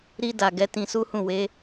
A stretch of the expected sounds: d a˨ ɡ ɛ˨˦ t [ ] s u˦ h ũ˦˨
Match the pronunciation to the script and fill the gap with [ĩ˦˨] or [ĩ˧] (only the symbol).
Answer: ĩ˧